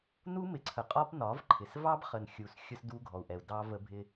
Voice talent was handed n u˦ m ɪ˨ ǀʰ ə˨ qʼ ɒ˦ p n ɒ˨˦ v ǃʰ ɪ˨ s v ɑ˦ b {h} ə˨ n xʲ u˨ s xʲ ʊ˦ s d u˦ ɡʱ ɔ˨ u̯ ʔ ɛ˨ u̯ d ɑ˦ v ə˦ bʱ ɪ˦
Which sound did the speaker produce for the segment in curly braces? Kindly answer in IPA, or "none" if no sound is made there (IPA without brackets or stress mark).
χ